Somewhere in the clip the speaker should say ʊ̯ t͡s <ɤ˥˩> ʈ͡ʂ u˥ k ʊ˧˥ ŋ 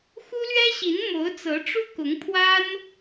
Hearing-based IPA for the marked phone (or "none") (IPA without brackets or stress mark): ɤ˧˥